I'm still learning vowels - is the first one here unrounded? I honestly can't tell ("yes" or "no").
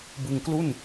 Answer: yes